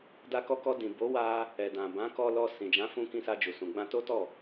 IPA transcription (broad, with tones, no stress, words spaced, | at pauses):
da˧kɔ˧kɔ˧ dĩ˨ bo˨˦wa˧ | ɛ˨dã˨bã˨˦ kɔ˧lɔ˧ sĩ˨d͡ʒã˨˦fũ˧kĩ˧ sa˧d͡ʒu˨sũ˨ ɡ͡bã˧to˦tɔ˦˨